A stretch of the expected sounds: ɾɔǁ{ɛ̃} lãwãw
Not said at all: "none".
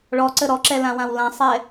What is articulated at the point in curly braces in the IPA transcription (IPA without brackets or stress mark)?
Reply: ɛ